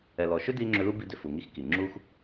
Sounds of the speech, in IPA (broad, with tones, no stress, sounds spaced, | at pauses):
ɛ˨ l ɔ˨ ʃ ʏ˦ d i˦ ŋ͡ǁ ʏ˧ l u˦ b i˧ d ʏ˨ f u˨ ŋ i˦ x k i˨ ŋ͡ǁ u˦ x